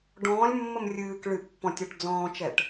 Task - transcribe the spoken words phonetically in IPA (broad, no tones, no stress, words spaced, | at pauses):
ɖɔ̃ːlʲmːəm rʲɨːk ɭɨʔpːɔ̃tʲɛʈ d͡zɔ̃ːt͡ʃɛʈ